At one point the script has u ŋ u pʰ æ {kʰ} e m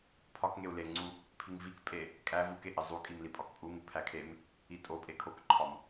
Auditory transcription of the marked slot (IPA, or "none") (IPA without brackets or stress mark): kʰ